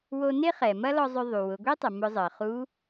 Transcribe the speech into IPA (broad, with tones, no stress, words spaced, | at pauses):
wo˧ne˥χɛ˩ mɐ˥lɔ˧ zˤʏ˧ðˤu˩ wʊ˩˧ɡʷi˥tˤɐ˩ mʊ˧zˤəː˩ χu˧˥